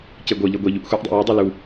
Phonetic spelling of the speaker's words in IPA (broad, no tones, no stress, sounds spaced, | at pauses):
c e ɡʷ ɤ ʎ ɤ ɡʷ e ʎ u ʔ xʷ ɛ ʔ dˤ ḛ j u dˤ ɤ l u